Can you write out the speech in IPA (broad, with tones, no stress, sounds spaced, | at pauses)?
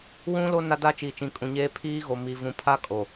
w ũ˦ l o˦ n a˦ d a˦ t͡ʃ iː˨ t͡ʃ ĩ˨ kʼ ũ˨ ɲ eː˦ pʰ iː˦ ɣ o˨ m i˨ v ũ˨ pʰ a˦ kʼ o˨